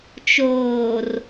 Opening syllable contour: low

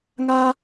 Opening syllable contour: high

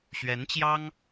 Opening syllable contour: rising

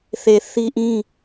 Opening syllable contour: low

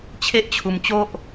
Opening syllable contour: high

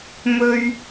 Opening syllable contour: high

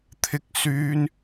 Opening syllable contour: high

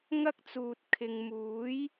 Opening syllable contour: high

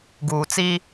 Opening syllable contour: low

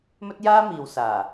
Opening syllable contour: high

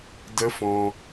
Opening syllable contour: high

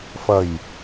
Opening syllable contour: low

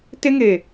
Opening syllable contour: high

